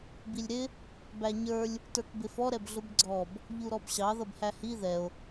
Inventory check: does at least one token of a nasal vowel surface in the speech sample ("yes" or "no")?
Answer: no